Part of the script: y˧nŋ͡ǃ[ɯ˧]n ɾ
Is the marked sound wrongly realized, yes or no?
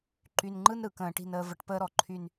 yes